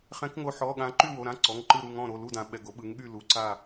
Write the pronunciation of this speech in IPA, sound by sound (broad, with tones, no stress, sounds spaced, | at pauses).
χ ɛ̃˨˦ k ŋ o˨˦ ħ ɔ˩˧˩ ɠ ã˨˦ ǃ y˥˨ w o˩˧˩ ɾ ã˥˨ ǀ ɔ˩˧˩ ŋ ǃ ɯ˥˨ ɾ u˥˨ ŋ ɔ̃˥˨ ɾ o˩˧˩ l u˥˨ d ã˨˦ ɓ ɛ˩˧˩ ɡ o˨˦ ɓ ɯ˨˦ ŋ ɠ y˥˨ l u˨˦ ǀ a˥˨